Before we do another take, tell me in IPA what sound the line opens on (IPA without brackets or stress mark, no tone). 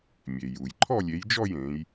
mʲ